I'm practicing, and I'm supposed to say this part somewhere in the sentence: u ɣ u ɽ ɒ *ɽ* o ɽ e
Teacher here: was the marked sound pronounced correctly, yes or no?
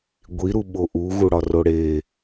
no